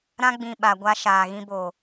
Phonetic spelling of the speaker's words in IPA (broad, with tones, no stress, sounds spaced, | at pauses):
ɾ ã˦ ɡ͡b ĩ˨ ɓ a˨ ɡʷ a˦ ʃ aː˨ ɣ ĩ˦ b o˨